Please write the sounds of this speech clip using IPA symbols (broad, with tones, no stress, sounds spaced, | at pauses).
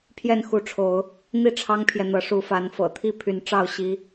pʰ j ɛ˥˨ n x u˨˦ ʈ͡ʂʰ o˨˦ ʊ̯ | n̪ i˥˨ ʈ͡ʂʰ ɑ˦ ŋ pʰ j ɛ˨ n̪ ɤ˨˦ ʂ u˨˦ f a˨˦ n f ɤ̰˨˩ t̪ʰ i˥˨ pʰ y˨˦ n ʈ͡ʂ ɑ˥˨ ʊ̯ ɕ i˦